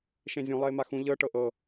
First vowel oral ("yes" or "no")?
no